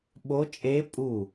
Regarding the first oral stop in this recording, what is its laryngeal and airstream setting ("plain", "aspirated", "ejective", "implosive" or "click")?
implosive